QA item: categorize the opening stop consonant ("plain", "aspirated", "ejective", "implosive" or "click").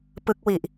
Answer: plain